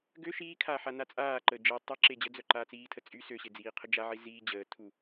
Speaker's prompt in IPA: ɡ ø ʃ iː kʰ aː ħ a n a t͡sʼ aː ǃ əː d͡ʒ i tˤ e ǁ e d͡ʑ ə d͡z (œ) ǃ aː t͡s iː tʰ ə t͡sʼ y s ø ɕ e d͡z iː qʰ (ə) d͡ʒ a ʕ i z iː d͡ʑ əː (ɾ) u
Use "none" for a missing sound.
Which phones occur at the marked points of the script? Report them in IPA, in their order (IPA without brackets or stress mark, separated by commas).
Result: œ, ə, tʰ